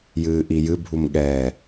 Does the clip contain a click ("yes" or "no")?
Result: no